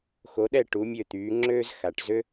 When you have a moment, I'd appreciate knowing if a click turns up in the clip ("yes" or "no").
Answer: yes